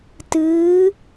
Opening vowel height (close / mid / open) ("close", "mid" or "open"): close